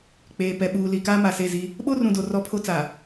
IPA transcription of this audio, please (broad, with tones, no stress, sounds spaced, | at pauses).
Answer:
k͡p eː˨ p ɛ˨ ɓ uː˨ l i˨ k aː˦ m a˨ s e˦˨ z i˦ | ɓ o˦ r ũ˨ d o˨ r ɔ˦ pʰ o˦ t͡s a˨